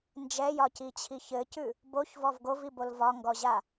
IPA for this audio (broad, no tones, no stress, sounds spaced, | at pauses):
n d͡ʒ ɛ j ɒ c i t͡ɕʰ i ç ɘ c ʉ | b o ç v ɔ v ɡ o v i b o l v ɒ ŋ ɡ ɔ ʑ a